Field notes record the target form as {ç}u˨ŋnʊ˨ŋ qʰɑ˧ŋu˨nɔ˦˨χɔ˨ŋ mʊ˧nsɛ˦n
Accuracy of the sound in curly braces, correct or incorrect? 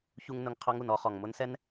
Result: correct